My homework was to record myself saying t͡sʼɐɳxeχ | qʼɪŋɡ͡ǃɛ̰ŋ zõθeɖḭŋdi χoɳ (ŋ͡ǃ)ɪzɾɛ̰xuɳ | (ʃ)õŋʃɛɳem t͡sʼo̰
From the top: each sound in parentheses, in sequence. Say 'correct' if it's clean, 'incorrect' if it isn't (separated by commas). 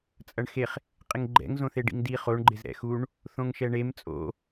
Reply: incorrect, incorrect